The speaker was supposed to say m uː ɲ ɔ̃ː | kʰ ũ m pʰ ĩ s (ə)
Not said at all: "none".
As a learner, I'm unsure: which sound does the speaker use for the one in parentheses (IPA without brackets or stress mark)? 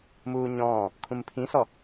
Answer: ɔ